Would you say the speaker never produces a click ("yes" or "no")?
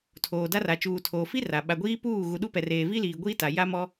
yes